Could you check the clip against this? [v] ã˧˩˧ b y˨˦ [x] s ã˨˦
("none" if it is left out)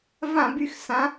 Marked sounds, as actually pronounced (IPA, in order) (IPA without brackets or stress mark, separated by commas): v, x